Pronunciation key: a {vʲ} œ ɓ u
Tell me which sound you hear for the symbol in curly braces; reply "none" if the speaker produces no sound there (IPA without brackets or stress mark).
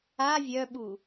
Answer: vʲ